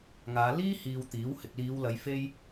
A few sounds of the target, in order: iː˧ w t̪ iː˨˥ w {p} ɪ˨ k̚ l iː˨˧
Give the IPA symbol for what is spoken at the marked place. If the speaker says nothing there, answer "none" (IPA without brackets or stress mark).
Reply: h